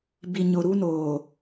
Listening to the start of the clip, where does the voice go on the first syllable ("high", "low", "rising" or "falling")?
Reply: low